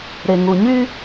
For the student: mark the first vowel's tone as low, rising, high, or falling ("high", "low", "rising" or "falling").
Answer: low